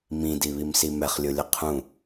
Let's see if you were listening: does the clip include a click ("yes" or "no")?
no